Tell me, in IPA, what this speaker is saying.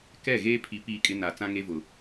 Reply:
k ɛ˦˨ ɣ eː˦ pʰ i˨ p iː˦˨ kʼ ɪ˦ n a˨ t͡s ã˦ ŋ e˦ v ʊ˨

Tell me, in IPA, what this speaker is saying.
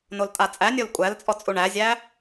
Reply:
n o l tʼ a t͡sʼ æ nʲ o l kʷʼ æ l t͡sʼ ɔ t͡sʼ u ɳ æ zʲ æ

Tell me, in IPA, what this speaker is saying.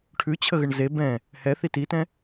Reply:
ʈʰ ʉ t͡ɕʰ ə ɣ ə ɳ z e b ɛ̃ | h ɛ θ i t i t ɛ̃

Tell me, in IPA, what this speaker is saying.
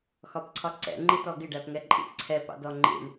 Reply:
x ɒ p ǀʰ ɒ ǀ ɛ̰ ŋ͡ǃ i t ɔ ɡ ɪ ɖ æ p ŋ ɛ ǃʼ ḭ ǀʰ ɛ p ɑ̰ d ɔ ŋ͡ǃ ḭ ɳ

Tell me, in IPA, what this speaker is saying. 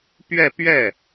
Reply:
p ɥ ɛ˥˧ p ɥ ɛ˥˩

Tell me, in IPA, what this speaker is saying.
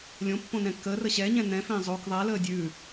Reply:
lʲ õ pː õ n ɛ̃ kː əː r ə ɕ ɛ ɲ ɛ̃ n ɛ̃ f ẽː zˤ o k ðˤ ɛ l əː dʲ ʉː

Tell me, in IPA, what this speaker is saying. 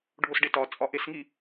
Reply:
ɖʱ o s ɖ e t ɒ t͡sʼ ɒ ʔ e s ŋ i

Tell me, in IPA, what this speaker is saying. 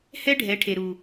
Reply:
h ɛ˦ ɖʱ ɛ˨˦ ʈʰ e˨ ɾ u˨

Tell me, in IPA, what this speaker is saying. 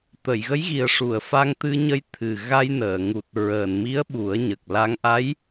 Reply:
t̪ ə˨˩˨ j ɣ ə˧˥ j ɣ i˨˩ ə̯ ʂ u˨˩˨ ə̯ f a˧ ŋ t̪ ɨ˧ ɲ ə˧ j t̪ʰ ɨ˨˩ ɣ a˧ j n əː˨˩˨ ŋ u˨˩ t̚ ɹ əː˨˩˨ n m i˧˥ ə̯ ɓ u˨˩˦ ə̯ ɲ ə˨˩ k̚ l a˧˥ ŋ ʔ a˧˥ j

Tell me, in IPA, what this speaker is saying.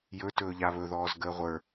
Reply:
j ɵ t ɵː ʎ a β ɵ ð ɔː z ɡ əː ʁʷ ə˞

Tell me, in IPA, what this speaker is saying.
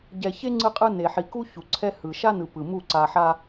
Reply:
ɟ ɛ˨ ç e˦ ŋ͡ǀ ɯ˦ qʼ ɯ˦ n e˨ ħ i˨ k u˦ ç u˨ ǀʰ ɛ˦ h ɯ˨ ʃ a˦ n ɯ˨ p ɯ˨ m u˦˨ ǀ a˨ ħ a˦

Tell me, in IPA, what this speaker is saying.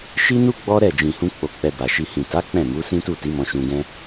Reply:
ʃ i˦ n u˦ ɡ͡b ɔ˦ ɾ ɛ˦˨ d͡ʒ ĩ˨ h ũ˧ k͡p o˧ k͡p ɛ˧ b a˨ ʃ i˨ h ĩ˨ t a˨˦ k͡p ɛ̃˦˨ m u˨˦ s ĩ˦ t u˦˨ t i˨˦ m ɔ̃˧ ʃ ũ˧ ɡ ɛ̃˦

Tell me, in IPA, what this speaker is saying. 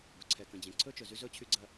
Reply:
b ɵ˨ ǀʰ ɛ˨ k ə̃˨ d͡ʑ ẽ˨ ǀʰ ɵ˦ t͡ʃ ɵ˨ z y˦ z ɵ˦ t͡ɕʰ y˦ ɡ͡ǀ ɐ˦

